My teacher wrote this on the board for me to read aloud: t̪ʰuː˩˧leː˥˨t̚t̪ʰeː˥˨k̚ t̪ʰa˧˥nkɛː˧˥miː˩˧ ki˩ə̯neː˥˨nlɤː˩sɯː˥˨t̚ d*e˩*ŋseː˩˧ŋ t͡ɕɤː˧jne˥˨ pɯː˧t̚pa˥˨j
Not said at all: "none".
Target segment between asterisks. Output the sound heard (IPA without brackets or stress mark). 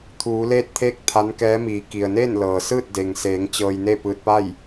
e˩